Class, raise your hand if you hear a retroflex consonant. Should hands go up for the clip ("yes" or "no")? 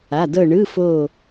yes